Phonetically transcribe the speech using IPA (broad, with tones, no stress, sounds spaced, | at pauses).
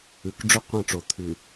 ʉ˨ k ɖ͡ʐ ɵ˦ qʷ ɐ̃˦˨ ʈ͡ʂ o˨ t̪ʰ ʉ˨